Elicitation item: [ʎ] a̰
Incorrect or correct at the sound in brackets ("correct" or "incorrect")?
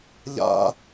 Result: correct